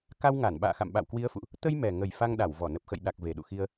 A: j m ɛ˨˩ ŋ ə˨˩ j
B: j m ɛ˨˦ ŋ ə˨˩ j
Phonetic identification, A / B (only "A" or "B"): A